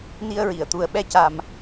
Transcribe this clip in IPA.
n i˧ ə̯ ɹ i˨˩˨ ə̯ t̪ u˨˩ ə̯ ɓ ɛ˧ c a˨˩ m

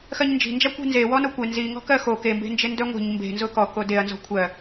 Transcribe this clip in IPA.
x ɜ ɲ n d͡ʒ i̤ n d͡ʒ a kʷ e̤ n z e w ɔ n o kʷ e n z i ŋ ɔ̤ k ɜ x o k e m b e̤ n d͡ʒ e n d œ ŋʷ i̤ ɲ m b e̤ n z ʊ k ɔ k o d e ɐ̯ n z ɔ̤ kʷʰ ɜ

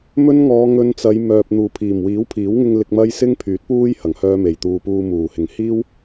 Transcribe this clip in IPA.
m ɵ˥ n ŋ ɔː˨˧ ŋ ɵ˧ n t͡s ɐ˨˧ j m œː˨ p̚ n̪ uː˨˩ pʰ iː˨˩ m w iː˨˥ w pʰ iː˨˥ w ŋ ɪ˧ ŋ l ɪ˧ k̚ m ɐ˥ j s ɪ˥ ŋ pʰ yː˨˥ t̚ p uː˥ j h ɐ˨˩ ŋ h œː˥ m e˨˩ j t̪ uː˧ p uː˧ m uː˨˩ h ɪ˨˩ ŋ h iː˥ w

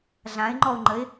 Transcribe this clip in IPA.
ɮ ã ɪ̯ ŋ͡ǃ ɔ ʊ̯ ŋ͡ǃ ə ɪ̯

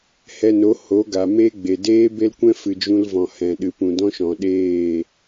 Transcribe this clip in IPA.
h ɛ˧ n o˨˦ h o˨˦ ɡ a˨ m eː˦ ɡ͡b e˨ d eː˦ b e˦ l kʷ ɛ̃˦ f ɨ˨ d͡ʒ ũ˧ l v ɔ̃˨ h ɛ̃˨ ɗ ɨ˨ p ũ˨ d ɔ̃˦ ʃ ɔ̃˨ ɗ eː˦˨

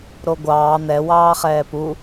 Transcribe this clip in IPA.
ɾ o ɡʷ ɑː n̪ ɛ w ɑː χ ɛː p u

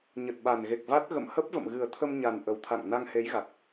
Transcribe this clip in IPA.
ɲ ə˨˩ t̚ ɓ a˨˩ n ɣ e˨˩ k̚ v a˦˥ t̚ ɣ ə̰˧˨ m h ə˦˥ p̚ v ə̰˧˨ m ɣ ɨ˨˩ ə̯ t̪ʰ ə˧ m ɲ a˨˩ n ʔ ə˨˩ w t̪ʰ a̰˧˨ ŋ n a˧ ŋ h e˨˦ j ɣ a˨˩ k̚

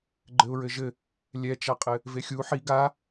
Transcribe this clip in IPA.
ɡ͡ǃ ɘ ʊ̯ ɹ ɘ ʒ ɘ | lʲ ɛ t͡ʃ a qʼ ɘ | v e xʲ u ħ i ɡ a

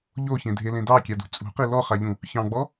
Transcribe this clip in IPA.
ʎ o ç ẽ dʱ e l ẽ d ɑ kʲ a d ṳ t͡sʼ ṳ q i l ɔ χ a ʎ ũ | ç ɑ̃ ɡ͡b ɔ

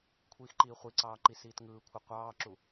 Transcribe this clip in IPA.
kʷʰ iː x ǃ iː χʷ i ǀ ɑː ǃ i s iː t ŋ ɯː kʷʰ ɯ qʷ ɑː ǁ u

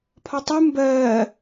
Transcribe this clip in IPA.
pʰ ɒ tˤ ɯ m b ɜː

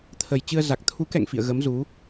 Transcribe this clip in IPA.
t̪ʰ ə˨˩ j t͡ɕ ɨ˧ ə̯ z a˨˩ k̚ t̪ʰ u˨˦ k ɛ̰˧˨ ŋ f ḭ˧˨ ə̯ ɣ ə˨˦ m z u˨˦

